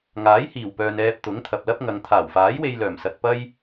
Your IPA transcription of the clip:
ŋ aː˨˥ j h iː˨˩ w p œː˨ n ɛː˧ p̚ t̪ ʊ˨˥ ŋ t̪ʰ ɐ˨ p̚ l ɐ˥ p̚ ŋ ɐ˨˧ ŋ t̪ʰ aː˨˩ w f aː˨˥ j w e˧ j l œː˨˩ m s ɐ˧ t̚ p ɐ˥ j

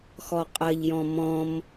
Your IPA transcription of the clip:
x ɔ qʼ ɐ ʎ j ɔ̃ m ɔ̃ m

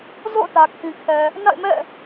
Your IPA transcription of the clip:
z o̰˦˨ ʊ̯ t ä˨ kʰ ĩ˨ kʰ ɛ˨ | n a̰˦˨ ɪ̯ m ɛ̰˦˨

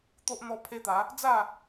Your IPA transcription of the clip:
t̪ o˦ ʔ n̪ ɔ˦ pʰ e˦ t̪ a˨˦ | d͡z a˥˧

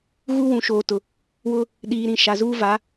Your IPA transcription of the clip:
ɣ u˦ w ũ˨ ʃ oː˨ t ʊ˨ | w ʊ˦ | ɗ iː˨ ɾ ĩ˨ ʃ a˨ z uː˦ v a˨˦

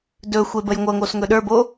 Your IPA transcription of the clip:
d ɵ xʷ e b ə j ŋʷ ɤ ŋ o s ŋ ɵ ɗ ə˞ b o

